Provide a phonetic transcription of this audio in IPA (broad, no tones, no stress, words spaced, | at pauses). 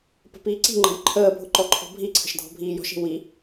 pə̤piːǀi̤ŋ͡ǃə̤j ǃʰəːbʱʊ ǃɔǃʰɔ̤bʱiǀʰə̤ʃ dʱɔ̤bʱiːjɔ̤ʃi̤ wi